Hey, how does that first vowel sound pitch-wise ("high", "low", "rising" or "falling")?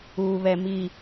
low